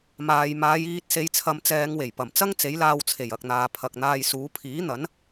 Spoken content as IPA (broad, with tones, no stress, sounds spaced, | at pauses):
m aː˨ j m aː˨˧ j iː˧ t̚ s e˨˧ j t͡sʰ ɐ˨˧ m t͡s ɛː˨˧ ŋ w e˨˩ j p ɐ˨˩ m t͡s ɐ˥ ŋ t͡s e˨˥ j l aː˧ w t͡sʰ e˨˩ j ɐ˨ k̚ n̪ aː˨ pʰ ɐ˨ k̚ n̪ aː˧ j s uː˨˥ pʰ iː˨˥ n̪ ɐ˨˥ n